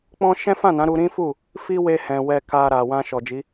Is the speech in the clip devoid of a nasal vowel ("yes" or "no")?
no